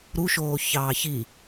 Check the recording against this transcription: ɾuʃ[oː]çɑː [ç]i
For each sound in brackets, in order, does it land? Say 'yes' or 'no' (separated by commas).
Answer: yes, yes